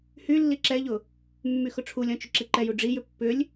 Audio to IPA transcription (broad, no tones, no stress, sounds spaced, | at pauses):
h y lː i ǁ ɛ ʎ ʊ | mː y x ʊ ʈ͡ʂʰ u lʲ ɔ̃ t͡ʃ ʏ ǁ i ǃ ɛ j u ɖ͡ʐ i j ʏ pː ʏ lʲ